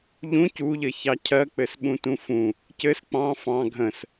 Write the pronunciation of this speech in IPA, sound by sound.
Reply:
ʎũ cuʎɘ çɑcʰɜk͡pɘs ɓũtũfũ | cɘs k͡pɑ̃ fɑ̃ ɡʱə̃s

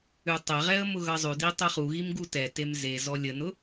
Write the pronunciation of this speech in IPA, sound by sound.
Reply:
ʉtˤɛʁɛə̯ mʊɣʌzˤʉdi tˤɛχuɣim ɡutɛtem ze zɔlʲənʊ

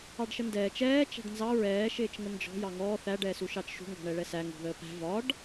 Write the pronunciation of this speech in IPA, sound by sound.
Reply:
ɑɖʃəndɛːt͡ʃ ɛː t͡ʃæ̤ɖnzɑ ɹɛː ʃɪːt͡ʃŋənd͡ʒɔ̤ jɑŋɔː θæ ɖɛːsuʃɑt͡ʃʃṳ ŋɡɔ̤ɳɛɭɛsæ ŋṳðəːpæ̤ vɒɖ

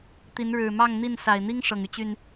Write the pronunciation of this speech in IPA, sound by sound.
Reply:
t̪i˨˦n ɻɻ̩˨˩mɑ˥˨ŋn̪i˥˨n sa˨˩ɪ̯n̪i˦ŋ ʂɤ˨˩ŋy˦t͡ɕy˨˩n

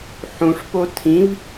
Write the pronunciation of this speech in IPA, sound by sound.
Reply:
ħũʂpo tʰĩv

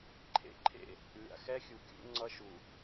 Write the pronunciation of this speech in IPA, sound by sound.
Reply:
ǃʰḛ˦ǃʰḛ˦˨ | lʲa̰˨xɛ˦xʲu˨ kʲṵ˦ŋ͡ǀʌ˦ʃu˨

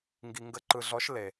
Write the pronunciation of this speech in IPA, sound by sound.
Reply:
ŋɡi˧ŋɡə˧˥ǃɯ˧ɮɔ˧˥ʃ le˧

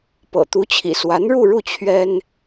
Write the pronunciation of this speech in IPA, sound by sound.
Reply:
pɤ̰˨˩ t̪u˧˥t͡ɕʰḭ˨˩swa˧˥n ɻu˥˧ɻu˥˩ t͡ɕʰɥɛ˥n

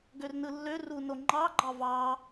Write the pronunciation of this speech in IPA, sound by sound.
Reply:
ɡørnɯlːø runoŋ͡ǃɑ ɡ͡ǃɑvɑ

